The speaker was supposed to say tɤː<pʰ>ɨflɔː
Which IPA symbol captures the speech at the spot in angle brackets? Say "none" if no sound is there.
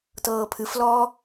pʰ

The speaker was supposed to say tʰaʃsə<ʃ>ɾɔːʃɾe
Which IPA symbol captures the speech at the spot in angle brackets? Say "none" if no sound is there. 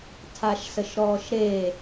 ʃ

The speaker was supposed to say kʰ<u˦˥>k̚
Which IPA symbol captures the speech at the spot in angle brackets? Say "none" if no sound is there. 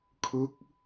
ɯ˦˥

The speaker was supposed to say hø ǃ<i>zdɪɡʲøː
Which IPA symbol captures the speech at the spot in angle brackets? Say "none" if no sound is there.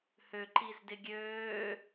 i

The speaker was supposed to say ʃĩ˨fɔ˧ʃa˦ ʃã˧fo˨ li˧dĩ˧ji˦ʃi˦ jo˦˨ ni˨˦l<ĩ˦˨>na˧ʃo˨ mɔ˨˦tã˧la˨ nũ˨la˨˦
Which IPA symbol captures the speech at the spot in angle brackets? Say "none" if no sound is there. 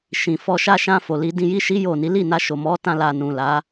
i˦˨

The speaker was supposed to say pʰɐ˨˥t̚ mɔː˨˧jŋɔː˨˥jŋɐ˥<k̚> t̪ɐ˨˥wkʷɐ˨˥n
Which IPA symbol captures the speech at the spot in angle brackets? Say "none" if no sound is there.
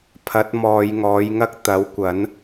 k̚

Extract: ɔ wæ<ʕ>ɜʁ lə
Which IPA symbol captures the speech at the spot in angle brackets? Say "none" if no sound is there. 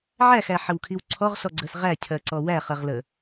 χ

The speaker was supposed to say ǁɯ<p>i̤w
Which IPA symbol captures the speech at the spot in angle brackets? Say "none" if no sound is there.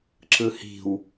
h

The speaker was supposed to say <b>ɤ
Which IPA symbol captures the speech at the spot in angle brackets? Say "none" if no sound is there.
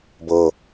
b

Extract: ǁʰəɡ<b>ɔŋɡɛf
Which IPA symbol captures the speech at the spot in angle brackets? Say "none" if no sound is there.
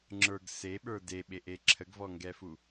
v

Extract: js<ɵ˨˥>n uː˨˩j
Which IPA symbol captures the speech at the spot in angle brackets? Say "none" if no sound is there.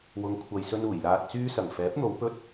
ɵ˧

